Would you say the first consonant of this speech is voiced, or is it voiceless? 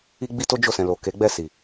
voiced